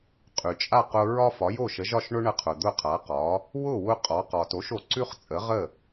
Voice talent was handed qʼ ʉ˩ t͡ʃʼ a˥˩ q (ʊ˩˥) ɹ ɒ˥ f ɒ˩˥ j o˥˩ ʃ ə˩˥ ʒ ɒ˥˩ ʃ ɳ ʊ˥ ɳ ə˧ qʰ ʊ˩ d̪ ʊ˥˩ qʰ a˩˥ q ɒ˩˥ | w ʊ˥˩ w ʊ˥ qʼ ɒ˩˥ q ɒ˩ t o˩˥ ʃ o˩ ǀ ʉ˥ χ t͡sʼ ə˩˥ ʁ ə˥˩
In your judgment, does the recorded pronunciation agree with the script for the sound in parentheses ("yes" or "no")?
no